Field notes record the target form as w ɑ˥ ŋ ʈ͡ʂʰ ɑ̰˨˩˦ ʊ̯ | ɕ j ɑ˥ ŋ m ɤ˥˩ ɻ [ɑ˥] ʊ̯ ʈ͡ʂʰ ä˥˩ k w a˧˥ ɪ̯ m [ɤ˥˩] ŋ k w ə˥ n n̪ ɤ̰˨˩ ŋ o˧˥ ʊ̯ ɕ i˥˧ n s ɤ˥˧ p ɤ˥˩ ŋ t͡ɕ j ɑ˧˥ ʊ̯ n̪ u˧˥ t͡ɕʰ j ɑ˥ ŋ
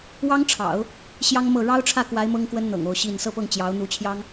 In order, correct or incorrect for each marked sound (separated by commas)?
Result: correct, incorrect